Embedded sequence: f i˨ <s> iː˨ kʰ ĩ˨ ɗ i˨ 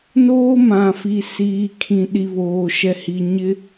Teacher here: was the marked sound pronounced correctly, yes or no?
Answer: yes